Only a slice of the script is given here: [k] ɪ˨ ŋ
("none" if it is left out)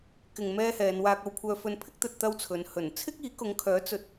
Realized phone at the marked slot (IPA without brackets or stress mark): k